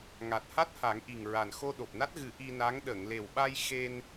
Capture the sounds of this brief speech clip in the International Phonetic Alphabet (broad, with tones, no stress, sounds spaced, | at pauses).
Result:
ŋ a˨˩ t̚ h a˦˥ t̚ h a˨˩˦ ŋ ʔ i˨˩ ŋ ɹ a˨˩ n x o˧ ɗ o˨˩ p̚ n a˦˥ t̚ ɣ ɨ˨˩˦ ʔ i˧ n a˧˥ ŋ ɗ ə˨˩˨ ŋ l e˨˩ w ɓ a˧ j x e˧ n